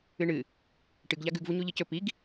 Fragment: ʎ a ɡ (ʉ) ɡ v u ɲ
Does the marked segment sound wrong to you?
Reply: no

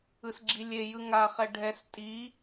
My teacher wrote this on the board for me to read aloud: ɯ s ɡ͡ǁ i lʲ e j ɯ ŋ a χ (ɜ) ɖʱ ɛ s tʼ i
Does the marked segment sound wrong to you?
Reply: yes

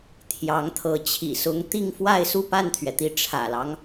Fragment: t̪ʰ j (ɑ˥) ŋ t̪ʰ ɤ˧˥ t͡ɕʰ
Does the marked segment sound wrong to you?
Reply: yes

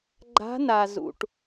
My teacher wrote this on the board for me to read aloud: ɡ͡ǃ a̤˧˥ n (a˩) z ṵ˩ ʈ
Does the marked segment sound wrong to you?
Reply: no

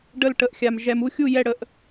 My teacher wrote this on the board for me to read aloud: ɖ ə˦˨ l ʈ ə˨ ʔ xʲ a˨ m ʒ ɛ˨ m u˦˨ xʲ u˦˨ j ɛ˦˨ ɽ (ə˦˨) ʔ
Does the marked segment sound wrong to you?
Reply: no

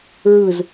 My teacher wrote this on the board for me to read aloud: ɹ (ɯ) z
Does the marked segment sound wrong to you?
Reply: no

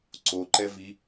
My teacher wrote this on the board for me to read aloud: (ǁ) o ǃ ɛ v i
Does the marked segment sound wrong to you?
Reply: yes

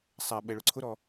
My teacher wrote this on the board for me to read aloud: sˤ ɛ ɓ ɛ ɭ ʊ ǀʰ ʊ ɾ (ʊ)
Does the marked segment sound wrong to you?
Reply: yes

